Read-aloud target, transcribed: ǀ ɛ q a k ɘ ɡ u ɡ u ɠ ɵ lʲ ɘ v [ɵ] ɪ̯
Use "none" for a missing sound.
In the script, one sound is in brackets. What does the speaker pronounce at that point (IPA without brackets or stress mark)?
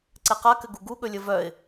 œ